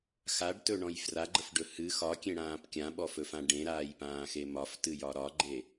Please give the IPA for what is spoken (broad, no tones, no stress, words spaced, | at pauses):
xaɖtɵɳɔ̃j fraɡ͡ǃəfɖɵ hɨ xɒkʲẽɽãːp kʲãɓɔfɵfã ɖẽɾaːjpãːxe mɒftɨjɒ ɾɒɡ͡ǃe